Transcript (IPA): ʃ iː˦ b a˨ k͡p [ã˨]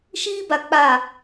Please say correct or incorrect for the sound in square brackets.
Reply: incorrect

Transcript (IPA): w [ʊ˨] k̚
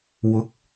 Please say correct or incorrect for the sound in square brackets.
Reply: incorrect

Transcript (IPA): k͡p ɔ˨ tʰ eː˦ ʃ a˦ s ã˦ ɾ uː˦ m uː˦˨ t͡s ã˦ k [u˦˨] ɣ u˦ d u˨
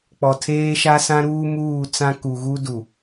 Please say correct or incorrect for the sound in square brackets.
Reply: incorrect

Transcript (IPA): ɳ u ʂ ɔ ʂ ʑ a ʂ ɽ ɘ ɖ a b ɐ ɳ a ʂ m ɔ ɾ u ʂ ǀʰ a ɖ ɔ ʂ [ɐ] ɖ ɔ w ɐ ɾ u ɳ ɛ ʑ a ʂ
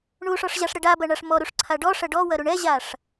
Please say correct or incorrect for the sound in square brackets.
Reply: correct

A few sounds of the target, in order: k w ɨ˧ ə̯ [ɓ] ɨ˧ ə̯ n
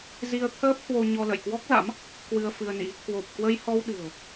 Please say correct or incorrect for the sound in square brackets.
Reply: incorrect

